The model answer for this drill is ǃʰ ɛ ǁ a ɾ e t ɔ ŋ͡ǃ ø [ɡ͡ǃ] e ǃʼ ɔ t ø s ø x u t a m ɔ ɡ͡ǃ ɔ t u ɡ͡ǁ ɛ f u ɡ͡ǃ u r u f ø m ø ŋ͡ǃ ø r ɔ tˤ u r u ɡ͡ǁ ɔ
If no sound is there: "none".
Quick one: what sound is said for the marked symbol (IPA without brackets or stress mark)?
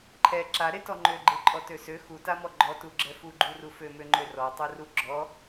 ɡ͡ǃ